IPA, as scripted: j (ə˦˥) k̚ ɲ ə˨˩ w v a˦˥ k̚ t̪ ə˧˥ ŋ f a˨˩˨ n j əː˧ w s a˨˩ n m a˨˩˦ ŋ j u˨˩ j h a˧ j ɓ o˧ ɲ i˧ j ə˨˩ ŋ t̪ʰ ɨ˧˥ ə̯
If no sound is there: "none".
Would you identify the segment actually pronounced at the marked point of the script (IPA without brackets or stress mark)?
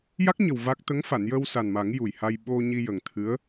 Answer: a˦˥